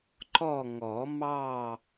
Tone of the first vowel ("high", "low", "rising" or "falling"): falling